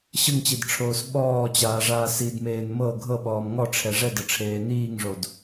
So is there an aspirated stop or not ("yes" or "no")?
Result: yes